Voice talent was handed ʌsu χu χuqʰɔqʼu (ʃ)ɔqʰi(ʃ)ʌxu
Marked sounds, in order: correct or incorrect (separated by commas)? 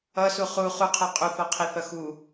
incorrect, incorrect